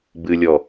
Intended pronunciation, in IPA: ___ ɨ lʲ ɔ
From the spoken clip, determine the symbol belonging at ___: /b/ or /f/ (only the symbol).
b